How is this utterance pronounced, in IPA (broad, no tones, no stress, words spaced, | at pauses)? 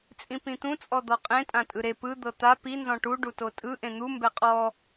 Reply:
t͡sʼĩpĩt̪ũ t͡sʼɔd̪ɔqʼẽ tʼãtʼɯɾe pɯ d̪ɤt̪a pi nzɔ̃ʈu ɖutotʼɯ ʔẽn̪u mbɛqʼɔ